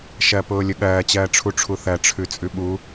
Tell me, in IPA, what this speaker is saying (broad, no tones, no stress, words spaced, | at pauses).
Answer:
ʃɜpʊːlʲʊɠɜː t͡ɕɜːʈ͡ʂʰuʈ͡ʂʰuθɜ ʈ͡ʂʰʉt͡sʼʉɓu